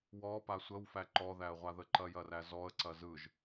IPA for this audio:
w ɔ p a sʷ ə w f æ ǃ ɔ ð æ ə̯ ʁʷ a ð ə ǃ ɐ j ɐ r æ z ɔ ə̯ ǀ ɐ z ɯ ʒ

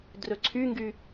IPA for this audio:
d r ɵ ǀʰ y ŋ ɡ y

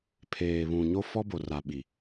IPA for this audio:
pʰ eː˨ β ũ˨ ɲ o˦ f ɔ˦ b o˨ r a˨ ɓ i˨

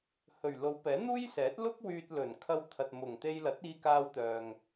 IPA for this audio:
h ɵ˨˩ ɥ l o˨˧ w p ɛː˨˥ n̪ uː˥ j s ɛː˨˥ t̚ l ʊ˥ k̚ w yː˨ t̚ l ɵ˨˩ n kʰ ɐ˧ w t̪ʰ ɐ˨ t̚ m ʊ˨˩ ŋ t̪ e˧ j l ɐ˨˥ t̚ iː˧ k aː˧ w t̪ œː˨ ŋ

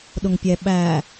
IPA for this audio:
ɗ ʊ ŋ pʲ ɛ ɓ æ

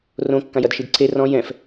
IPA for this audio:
r õ kː ã j ɐ d ʃ i d ǀʰ e r ɔ̃ j ɛ̃ f

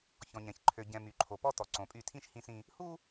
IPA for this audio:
ç ɔ̃˨ ɲ ɛ̃˨ ç ǃʰ ø˨ ɟ ɛ̃˨ m y˨ ǃʰ o˨ p ɔ˦ t ɔ˨ ǀ õ˨ pʼ y˦˨ tʰ ĩ˦ ʃ h ĩ˦ s ĩ˦ | h u˦

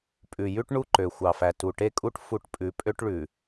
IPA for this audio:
pʼ ʉ˨ j ʉ˦ ʈ ɳ u˦ ǃ ø˨ xʷ ɑ˨ f æ˨ t u˨ ʈ e˦ kʼ u˦ ʈ f u˦˨ ʈ pʼ ʉ˨˦ pʼ ø˦ ʈ ɭ ʉ˨

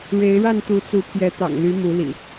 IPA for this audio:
ɻ e˨˦ ɪ̯ ɻ a˥˨ n t̪ u˨˦ t͡s u˨˦ pʰ j ɛ˨˦ t̪ ɑ̰˨˩ ŋ l y˨˦ m u˨˦ l ḭ˨˩

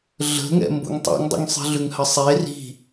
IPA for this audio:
ɮ ə̤ ŋ ɛ̰ m b ṵ ŋ tˤ ɛ̰ ŋ dˤ ṵ ŋ sˤ i̤ ɮ ʉ ŋ h ə sˤ e r i̤

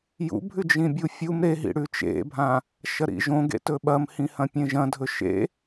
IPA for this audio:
j ṵ bʱ ʉ d͡ʒ ĩ bʲ u fʲ u m ɾ e ɦ ḭ ɽ ʉ t͡ʃ ḛ bʱ ã | ʃ ɐ ɾ ḭ ʒ õ ɡ ḛ t ɵ ɓ ɐ m h ĩ h ɐ̃ pʲ ẽ ʒ ɐ̃ dʱ ɵ ʃ ḛ

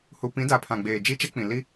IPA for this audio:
h u˨ p ĩ˨˦ d a˨ pʰ ã˨ ɡ͡b eː˨ d͡ʒ i˦ t͡ʃ ɛ˦ k͡p ĩ˨ l i˦

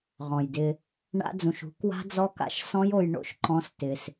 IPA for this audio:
ʁ ɔ̃˨ j d ɪ˧ | ɳ a̰˧ d͡z ũ˨ ʃ ṳ˨˦ k w a̤˦ d͡z ɔ˦ k a̰˧ ʃ s ɔ̃˦ j o˧ j ɳ o̰˧ ʃ ǃ ɔ̃˦ s t ɪ˧ s

